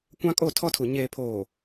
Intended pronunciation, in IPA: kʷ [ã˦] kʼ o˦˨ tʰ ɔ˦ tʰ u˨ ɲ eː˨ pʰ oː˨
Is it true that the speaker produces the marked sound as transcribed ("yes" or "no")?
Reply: yes